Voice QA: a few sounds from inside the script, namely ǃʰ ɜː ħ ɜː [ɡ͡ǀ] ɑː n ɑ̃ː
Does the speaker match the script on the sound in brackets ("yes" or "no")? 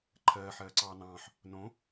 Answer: no